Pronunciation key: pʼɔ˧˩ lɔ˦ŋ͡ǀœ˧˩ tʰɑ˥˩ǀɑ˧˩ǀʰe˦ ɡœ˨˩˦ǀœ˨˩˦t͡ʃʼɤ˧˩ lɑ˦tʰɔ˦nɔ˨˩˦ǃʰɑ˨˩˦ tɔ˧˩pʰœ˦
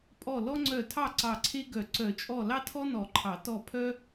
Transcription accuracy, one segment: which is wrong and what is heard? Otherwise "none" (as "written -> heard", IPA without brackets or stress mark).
ɤ˧˩ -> ɔ˧˩